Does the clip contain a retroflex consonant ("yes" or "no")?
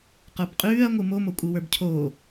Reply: no